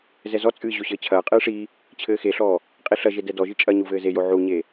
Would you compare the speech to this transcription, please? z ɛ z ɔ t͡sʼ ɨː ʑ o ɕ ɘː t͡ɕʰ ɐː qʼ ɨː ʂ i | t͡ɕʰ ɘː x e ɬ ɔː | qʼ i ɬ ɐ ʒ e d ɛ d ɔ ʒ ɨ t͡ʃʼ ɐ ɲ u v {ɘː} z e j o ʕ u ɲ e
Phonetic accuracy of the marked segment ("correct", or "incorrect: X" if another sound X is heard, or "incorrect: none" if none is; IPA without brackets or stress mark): correct